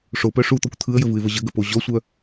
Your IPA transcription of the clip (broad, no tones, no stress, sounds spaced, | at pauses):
ʂ o p œ ʂ u t̪ ɔ kʷ t̪ʰ ɯ ə̯ j ə v ɯ ɪ̯ v ə ʑ ə ɡ ə p o ʑ ɔ sʷ œ